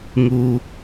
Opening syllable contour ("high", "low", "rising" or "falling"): low